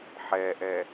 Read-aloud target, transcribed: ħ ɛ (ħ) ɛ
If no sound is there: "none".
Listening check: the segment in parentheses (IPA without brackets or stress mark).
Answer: ʔ